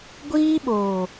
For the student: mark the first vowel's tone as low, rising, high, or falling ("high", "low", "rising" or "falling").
high